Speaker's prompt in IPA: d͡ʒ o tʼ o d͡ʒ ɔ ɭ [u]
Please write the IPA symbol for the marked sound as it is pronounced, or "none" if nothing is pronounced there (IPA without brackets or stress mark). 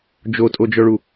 u